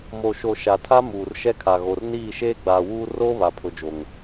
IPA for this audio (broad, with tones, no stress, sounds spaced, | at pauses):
m o˨ ʃ o˨ ʃ a˨ tʰ a˦ m uː˨ r ʃ ɛ˦ kʰ a˨ ɣ o˨ r n iː˦˨ ʃ eː˦ ɡ͡b aː˨ w uː˦ r o˦ β a˨ pʰ ʊ˨ d͡ʒ o˨ ŋ